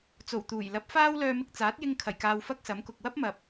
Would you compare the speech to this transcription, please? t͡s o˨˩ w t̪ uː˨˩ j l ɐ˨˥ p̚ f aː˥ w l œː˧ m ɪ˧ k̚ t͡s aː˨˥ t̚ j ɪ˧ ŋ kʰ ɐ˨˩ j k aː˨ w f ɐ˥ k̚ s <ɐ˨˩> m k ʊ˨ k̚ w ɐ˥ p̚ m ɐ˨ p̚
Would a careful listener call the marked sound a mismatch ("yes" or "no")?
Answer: yes